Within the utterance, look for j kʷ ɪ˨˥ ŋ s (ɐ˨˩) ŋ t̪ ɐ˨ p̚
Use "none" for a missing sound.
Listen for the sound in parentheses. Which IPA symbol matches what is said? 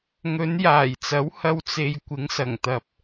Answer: ɐ˨˩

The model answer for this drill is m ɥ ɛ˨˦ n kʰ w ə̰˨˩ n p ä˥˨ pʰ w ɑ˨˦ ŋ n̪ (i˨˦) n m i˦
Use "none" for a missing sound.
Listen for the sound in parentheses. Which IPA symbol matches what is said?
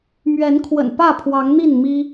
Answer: i˥˨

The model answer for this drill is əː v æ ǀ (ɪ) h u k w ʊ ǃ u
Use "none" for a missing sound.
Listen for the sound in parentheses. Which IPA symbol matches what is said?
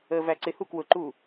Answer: ɪ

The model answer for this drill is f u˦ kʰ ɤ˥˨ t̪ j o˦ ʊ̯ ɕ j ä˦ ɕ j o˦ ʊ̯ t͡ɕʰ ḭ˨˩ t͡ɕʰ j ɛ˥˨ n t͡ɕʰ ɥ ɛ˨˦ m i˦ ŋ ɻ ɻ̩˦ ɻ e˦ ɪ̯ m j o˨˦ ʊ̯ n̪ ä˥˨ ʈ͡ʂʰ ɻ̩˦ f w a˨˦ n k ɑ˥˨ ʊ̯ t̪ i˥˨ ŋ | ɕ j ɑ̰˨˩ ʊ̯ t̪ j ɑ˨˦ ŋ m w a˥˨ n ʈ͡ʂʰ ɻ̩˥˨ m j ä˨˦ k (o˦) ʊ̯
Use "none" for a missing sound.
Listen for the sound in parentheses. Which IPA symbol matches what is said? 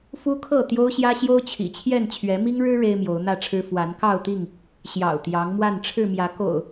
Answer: o̰˨˩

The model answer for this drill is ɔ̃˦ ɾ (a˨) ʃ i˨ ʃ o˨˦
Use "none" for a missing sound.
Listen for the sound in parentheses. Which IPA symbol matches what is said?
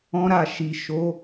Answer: a˦˨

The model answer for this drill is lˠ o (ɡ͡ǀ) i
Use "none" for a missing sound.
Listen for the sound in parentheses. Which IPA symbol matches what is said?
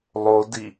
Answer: d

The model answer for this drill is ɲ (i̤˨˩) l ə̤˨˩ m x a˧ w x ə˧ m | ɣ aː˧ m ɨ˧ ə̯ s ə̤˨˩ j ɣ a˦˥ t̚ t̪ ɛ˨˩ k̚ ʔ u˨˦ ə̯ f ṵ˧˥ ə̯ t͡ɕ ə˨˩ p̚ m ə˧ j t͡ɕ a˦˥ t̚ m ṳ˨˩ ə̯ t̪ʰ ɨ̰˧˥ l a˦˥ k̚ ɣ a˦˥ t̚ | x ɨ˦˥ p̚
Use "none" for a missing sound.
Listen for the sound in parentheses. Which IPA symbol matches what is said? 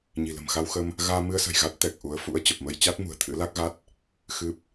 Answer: i̤˨˩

